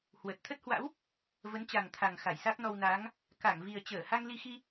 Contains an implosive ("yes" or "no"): no